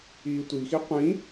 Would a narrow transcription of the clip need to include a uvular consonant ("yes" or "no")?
yes